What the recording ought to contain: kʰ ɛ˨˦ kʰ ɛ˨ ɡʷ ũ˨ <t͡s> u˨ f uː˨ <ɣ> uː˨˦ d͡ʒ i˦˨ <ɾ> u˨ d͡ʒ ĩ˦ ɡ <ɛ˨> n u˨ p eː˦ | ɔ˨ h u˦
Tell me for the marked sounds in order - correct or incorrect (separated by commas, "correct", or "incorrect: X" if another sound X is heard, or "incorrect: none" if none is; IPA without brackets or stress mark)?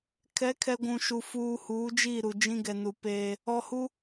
incorrect: ʃ, incorrect: h, correct, correct